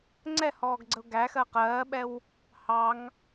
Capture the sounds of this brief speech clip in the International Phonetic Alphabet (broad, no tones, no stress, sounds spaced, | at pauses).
ŋ͡ǀ ɛ h ɔː ɡ ɡ͡ǀ ə ʊ̯ ɡ æ x ɜ q ɜː ɓ ɛ w | h ɑ ŋ